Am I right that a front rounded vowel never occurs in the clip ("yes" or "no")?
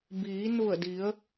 yes